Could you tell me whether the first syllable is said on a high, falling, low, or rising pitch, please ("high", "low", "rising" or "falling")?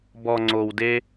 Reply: low